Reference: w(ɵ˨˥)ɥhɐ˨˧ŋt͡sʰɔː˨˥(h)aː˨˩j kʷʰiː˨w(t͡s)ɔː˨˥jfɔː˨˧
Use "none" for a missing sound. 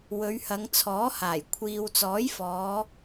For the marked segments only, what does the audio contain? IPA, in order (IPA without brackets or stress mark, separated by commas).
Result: ɵ˨˧, h, t͡s